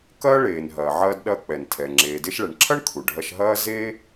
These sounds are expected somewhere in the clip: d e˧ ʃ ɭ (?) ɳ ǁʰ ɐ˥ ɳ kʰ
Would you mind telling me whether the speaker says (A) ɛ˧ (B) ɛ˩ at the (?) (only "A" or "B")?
B